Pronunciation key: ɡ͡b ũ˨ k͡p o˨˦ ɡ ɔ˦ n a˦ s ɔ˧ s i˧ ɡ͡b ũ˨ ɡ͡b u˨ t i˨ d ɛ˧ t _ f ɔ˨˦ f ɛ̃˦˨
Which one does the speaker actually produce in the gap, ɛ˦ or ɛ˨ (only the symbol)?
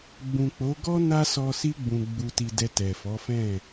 ɛ˨